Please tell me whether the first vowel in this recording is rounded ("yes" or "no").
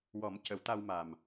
yes